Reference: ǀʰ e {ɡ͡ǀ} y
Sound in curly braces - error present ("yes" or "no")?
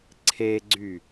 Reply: no